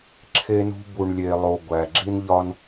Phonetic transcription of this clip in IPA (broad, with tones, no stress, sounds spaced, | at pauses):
ǁʰ e˧ n ṳ˧ b u˩ ɳ lʲ e˩ lˠ o˩ ɡʷ æ˩ ɡ͡ǁ i˥ n ʎ ɒ˥ n